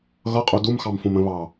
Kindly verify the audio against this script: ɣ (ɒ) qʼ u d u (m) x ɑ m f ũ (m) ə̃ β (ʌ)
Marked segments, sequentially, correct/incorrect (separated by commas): incorrect, correct, correct, incorrect